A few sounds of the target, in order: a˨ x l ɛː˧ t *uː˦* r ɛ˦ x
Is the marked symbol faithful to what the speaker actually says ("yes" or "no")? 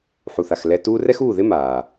yes